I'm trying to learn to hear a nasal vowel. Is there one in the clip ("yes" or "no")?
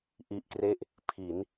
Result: no